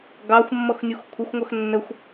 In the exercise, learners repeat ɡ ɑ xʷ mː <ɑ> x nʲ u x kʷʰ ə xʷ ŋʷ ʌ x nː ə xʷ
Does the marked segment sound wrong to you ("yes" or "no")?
yes